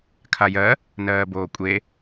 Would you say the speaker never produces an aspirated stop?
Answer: no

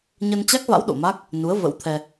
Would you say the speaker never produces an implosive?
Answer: no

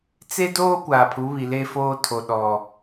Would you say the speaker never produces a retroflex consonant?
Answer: yes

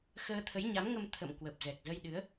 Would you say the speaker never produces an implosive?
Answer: no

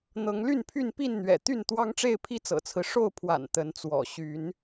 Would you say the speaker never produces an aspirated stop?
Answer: no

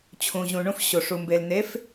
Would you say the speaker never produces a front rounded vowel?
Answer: yes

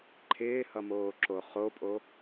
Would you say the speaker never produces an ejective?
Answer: no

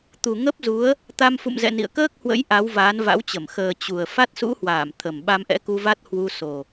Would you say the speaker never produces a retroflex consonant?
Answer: yes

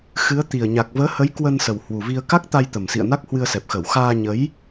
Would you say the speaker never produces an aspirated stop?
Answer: yes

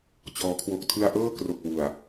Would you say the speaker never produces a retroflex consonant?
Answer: yes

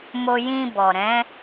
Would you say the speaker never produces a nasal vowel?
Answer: no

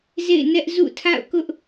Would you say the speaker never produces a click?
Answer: yes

